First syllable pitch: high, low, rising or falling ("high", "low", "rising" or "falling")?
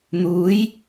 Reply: rising